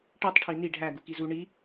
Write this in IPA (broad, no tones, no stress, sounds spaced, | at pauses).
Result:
ʈ e tˤ ʈʰ i n i ɖʱ æ ɡ u k i z u ɳ i